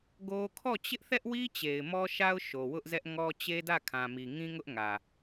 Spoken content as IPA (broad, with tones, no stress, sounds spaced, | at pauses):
ɡ o˦ kʰ ɔ˦˨ t͡ɕ ɪ˦ ʔ θ ɛ˦ ʔ w i˦ t͡ɕ e˨ ɪ̯ m ɔ˦ ʃ a˦ ʊ̯ ʃ o˨ w ʊ˦ ʔ z ɛ˦ ʔ ŋ ɔ˦ t͡ɕ e˦ d ä˦˨ kʰ ã˨ m i˨ ŋ ĩ˦ ŋ ʊ˦ ʔ ŋ ä˨